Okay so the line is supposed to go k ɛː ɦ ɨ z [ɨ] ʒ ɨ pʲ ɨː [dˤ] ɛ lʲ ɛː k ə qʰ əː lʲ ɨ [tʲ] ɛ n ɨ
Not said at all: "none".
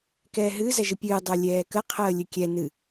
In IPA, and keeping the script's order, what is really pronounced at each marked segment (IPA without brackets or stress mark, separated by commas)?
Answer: ɛ, dˤ, kʲ